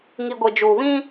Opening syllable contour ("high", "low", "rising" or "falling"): low